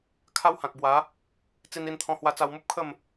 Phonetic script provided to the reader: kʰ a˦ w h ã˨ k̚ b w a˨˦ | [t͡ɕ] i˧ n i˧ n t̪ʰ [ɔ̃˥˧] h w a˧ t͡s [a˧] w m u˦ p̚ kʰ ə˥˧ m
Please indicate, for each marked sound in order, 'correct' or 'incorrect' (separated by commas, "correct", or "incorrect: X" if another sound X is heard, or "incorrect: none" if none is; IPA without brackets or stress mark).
incorrect: t͡s, incorrect: ɔ̃˧, correct